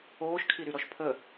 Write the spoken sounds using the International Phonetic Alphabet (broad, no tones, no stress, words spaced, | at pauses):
oːʃkʰiɾyɾɔʃ pʰə